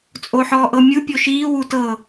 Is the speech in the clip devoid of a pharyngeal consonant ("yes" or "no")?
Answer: no